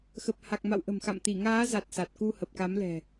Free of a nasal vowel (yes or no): yes